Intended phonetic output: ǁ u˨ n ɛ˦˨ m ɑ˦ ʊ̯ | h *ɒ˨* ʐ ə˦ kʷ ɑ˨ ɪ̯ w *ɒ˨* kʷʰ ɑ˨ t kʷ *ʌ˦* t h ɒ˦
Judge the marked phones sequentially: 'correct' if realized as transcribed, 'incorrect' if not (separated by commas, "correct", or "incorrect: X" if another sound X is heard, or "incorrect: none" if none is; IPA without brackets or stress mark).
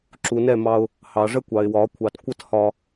incorrect: ɑ˨, incorrect: ɒ˨˦, correct